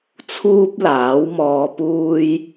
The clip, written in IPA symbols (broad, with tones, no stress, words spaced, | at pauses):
t͡sʰuː˥p̚laː˨˥wmɔː˧puː˥j